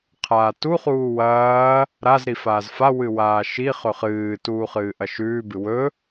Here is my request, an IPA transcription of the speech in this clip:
qʰ aː t u χ uː w ɐː | ɾ a z ɾ i f aː z f a w ɨ w aː ʃ i χ ɵ χ ɨː t uː χ ɨː ʔ ɐ ʃ ʉː b ɨ w ɵ

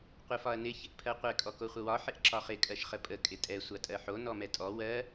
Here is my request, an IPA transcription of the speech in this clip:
qʷ ɪ f ɒ ɐ̯ n ɪ ç ɪ ʔ pʰ ɜ qʷ ɛ kʼ ɔ k o χʷ ə w ɒ ħ ɪ ʔ ǁ ɒ χ ɪ kʼ ɜ ʃ χ ə pʼ ə kʼ ɪ tʼ ɛ sʷ a tʼ ɜ ħ o n ɔ m ɛ tʼ ɔ w ɜ

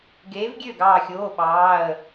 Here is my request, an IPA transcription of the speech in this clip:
ɡ eː˨˥ v ɡʲ ø˥˩ ɡ ɑː˧˩ xʲ oː˩˧˩ ɓ ɑː˩˧˩ ə̯

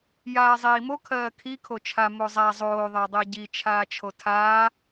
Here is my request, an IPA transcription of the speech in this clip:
j aː zˤ iː m o kʰ ɜː kʰ i kʰ o t͡ʃʰ a m o zˤ a zˤ oː ðˤ ɜ dˤ ɜ ɟ i t͡ʃʰ aː t͡ʃʰ o tʰ aː

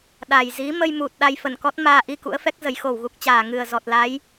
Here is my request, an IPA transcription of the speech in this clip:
ɗ a˨˩ j z i˨˦ m ə˧ j m u˨˩ t̚ ɗ a˧ j f ə˧˩ n k ɔ˦˥ t̚ m aː˧ ʔ i˧ k ṵ˧˥ ə̯ f ɛ˦˥ k̚ z ə˨˩ j x o˧˩ w ɣ u˨˩ k̚ t͡ɕ aː˧˩ ŋ ɨ˨˩ ə̯ z ɔ˨˩ t̚ l a˨˦ j

